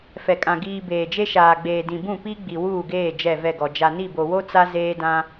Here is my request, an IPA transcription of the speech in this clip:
f ɛ˨ kʼ ã˨ ɡ iː˨ b eː˨ d͡ʒ e˦ ʃ aː˨ ɡ͡b eː˨ d ĩ˨ b ũ˦˨ p i˦ ɡ͡b i˨ w uː˦˨ ɡ eː˦˨ d͡ʒ ɛ˦˨ v ɛ˦˨ ɡ ɔ˨ d͡ʒ a˨ n i˦˨ b o˨ w o˦ t͡s a˦ z eː˦ d ã˦

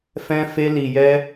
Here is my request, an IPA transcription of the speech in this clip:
f ɛ̃˦ f e˦ l i˧ j ɛ˦

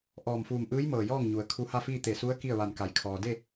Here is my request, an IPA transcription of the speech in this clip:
ʔ ɔː˧˩ m f uː˧˩ m ʔ ɯː˧˥ j m ɤː˧˩ j ɔː˥˨ ŋ ɲ u˩˧ ə̯ kʰ u˧ h a˥˨ f iː˥˨ t̪ e˧˩ s u˧˥ ə̯ k i˥˨ ə̯ ʋ a˧˩ n k a˩˧ j kʰ ɔː˩ d e˥˨

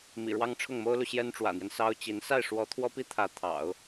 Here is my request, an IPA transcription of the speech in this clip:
m ḭ˨˩ ɻ w ɑ˥ ŋ ʈ͡ʂʰ ʊ˥˩ ŋ m o˥ ʊ̯ l u˨ ɕ j ɛ˥ n ʈ͡ʂ w ä̰˨˩ n̪ j ɛ˦ n s ɑ˥ ʊ̯ t͡ɕ i˧˥ n s a˥˩ ɪ̯ ʂ w ɔ˧˥ t̪ʰ w ɔ˥ p i˥ t̪ʰ ä˧˥ t̪ʰ ɑ̰˨˩˦ ʊ̯

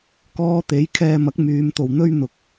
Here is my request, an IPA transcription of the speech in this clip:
k ɔː˧ t̪ e˨˥ j kʰ ɛː˧ m ɐ˨˥ k̚ m yː˨˧ m t̪ o˨ w n̪ ɵ˥ ɥ n̪ ʊ˧ k̚

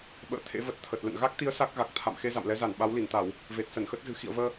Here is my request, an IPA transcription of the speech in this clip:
ɓ ə̰ː˧˨ t̪ʰ ḛ˧˥ v ə˨˩ t̚ t̪ʰ ə˨˩ t̚ l ə̰˧˨ n ɣ a˦˥ k̚ t̪ i˨˦ ə̯ s a˦˥ k̚ ɣ a˨˩ k̚ t̪ʰ a̰˧˨ m x e˧ z a̰˧˨ m l ɛ˨˦ z a˧˩ n ɓ a˨˦ w l i˧˩ n t̪ a˧˩˨ w | v e˨˩ t̚ s ə˧˩ n x ə˦˥ t̚ z ɨ̤˨˩ x ḭ˧˨ ə̯ v əː˧

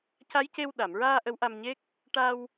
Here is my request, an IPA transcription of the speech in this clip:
c a˧˥ j c e˧ w ɗ a˨˩˨ m ɹ aː˧ ʔ ə˧˥ w ʔ a˧ m ɲ e˦˥ k̚ | ʈ a˧ w

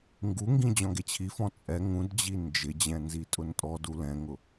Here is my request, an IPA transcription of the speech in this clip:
ŋ ɡ u ŋ ɡ ĩ d͡ʑ ɔ̃ ɡ e t͡ɕʰ i f ɔ̃ t͡sʼ ɛ ŋ ũ d d͡ʑ i n d͡ʒ ɪ d͡ʑ ɛ̃ n z i tʼ ʊ n tʼ ɔ d u l ɛ̃ ŋ ʊ

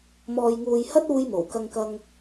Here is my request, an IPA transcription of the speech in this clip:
m ɔː˨ j ŋ uː˨ j h ɐ˥ t̚ uː˧ j m o˨˩ w k ɐ˧ ŋ k ɐ˧ ŋ

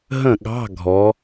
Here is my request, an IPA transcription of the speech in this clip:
ɦ ə̃˧˩ ɠ ɑ̤˧˥˧ ɡʱ ɔ˩˧

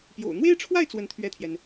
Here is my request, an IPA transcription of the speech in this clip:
p j o̰˨˩ ʊ̯ n̪ w e˥ ɪ̯ ʈ͡ʂʰ w a˥˧ ɪ̯ t͡s w ə˥˧ n t̪ʰ ɥ ɛ˥˩ t̪ʰ j ɛ˩ n

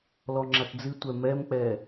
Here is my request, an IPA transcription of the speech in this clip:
l ɔ ŋ͡ǁ a t d͡z ɨ tʷ ɛ m ɛ m k͡p ɛ

